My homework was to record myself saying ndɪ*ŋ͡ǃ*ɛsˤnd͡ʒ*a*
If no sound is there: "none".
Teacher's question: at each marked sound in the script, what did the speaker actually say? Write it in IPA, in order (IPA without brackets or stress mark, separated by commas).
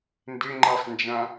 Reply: ŋ͡ǃ, ã